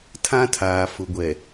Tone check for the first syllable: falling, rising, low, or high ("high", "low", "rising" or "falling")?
high